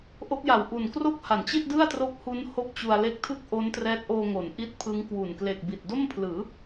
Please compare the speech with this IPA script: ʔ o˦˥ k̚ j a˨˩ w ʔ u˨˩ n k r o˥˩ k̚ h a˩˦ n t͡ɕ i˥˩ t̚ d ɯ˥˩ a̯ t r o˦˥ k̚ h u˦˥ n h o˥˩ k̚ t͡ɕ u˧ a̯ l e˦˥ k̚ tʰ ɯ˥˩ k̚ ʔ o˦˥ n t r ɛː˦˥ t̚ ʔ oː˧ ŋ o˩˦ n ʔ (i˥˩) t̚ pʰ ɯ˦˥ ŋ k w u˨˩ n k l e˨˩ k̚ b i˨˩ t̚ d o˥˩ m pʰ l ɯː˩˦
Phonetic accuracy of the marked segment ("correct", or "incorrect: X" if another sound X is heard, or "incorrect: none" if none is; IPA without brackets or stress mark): incorrect: i˦˥